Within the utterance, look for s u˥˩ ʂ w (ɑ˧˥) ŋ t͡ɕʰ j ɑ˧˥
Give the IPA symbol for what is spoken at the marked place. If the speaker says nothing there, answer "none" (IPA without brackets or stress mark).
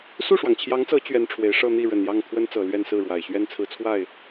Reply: ɑ˩